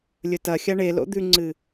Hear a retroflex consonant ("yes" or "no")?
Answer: yes